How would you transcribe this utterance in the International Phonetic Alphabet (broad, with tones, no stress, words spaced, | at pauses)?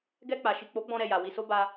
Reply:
ɡɛ˧k͡pa˨ ʃi˨k͡po˨˦ɡ͡bɔ̃˧ɾɛ˨ ja˨ wi˨so˧ ba˧